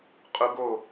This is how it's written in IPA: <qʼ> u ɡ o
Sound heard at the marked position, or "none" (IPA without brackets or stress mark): qʼ